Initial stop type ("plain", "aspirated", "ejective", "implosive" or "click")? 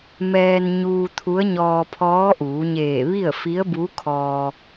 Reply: aspirated